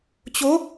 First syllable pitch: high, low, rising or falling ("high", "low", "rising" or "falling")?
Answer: rising